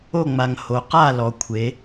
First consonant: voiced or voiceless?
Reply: voiced